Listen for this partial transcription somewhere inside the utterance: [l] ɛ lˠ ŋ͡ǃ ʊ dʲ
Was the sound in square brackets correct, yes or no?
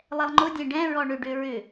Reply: no